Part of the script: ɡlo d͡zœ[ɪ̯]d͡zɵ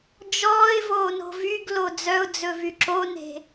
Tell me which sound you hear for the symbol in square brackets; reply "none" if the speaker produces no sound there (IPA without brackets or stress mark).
ʊ̯